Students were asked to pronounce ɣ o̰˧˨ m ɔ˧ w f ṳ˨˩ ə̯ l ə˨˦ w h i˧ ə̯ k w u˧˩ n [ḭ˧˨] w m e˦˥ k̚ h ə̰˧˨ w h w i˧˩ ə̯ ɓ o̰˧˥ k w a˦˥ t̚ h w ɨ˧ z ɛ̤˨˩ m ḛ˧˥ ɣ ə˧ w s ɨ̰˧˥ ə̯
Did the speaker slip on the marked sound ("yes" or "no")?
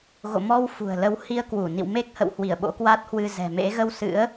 no